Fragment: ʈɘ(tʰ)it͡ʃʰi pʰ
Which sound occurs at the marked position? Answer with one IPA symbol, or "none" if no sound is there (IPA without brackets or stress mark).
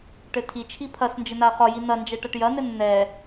tʰ